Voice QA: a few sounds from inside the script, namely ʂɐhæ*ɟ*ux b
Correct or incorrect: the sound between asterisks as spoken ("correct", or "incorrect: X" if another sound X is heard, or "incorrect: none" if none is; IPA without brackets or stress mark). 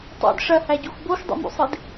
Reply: correct